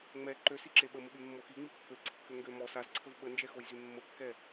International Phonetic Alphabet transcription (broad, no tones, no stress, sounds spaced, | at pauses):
ŋ͡m ɛ ǃ ø s i ǁ e ɓ ə m ə ɓ y mː o x i ŋ͡m i pː ø ǀ i kː ø ŋ ɡ ø m ɔ s a z ǀʰ ə v ɓ ə n d͡ʒ ɛ x o j z y mː ə kː ɛ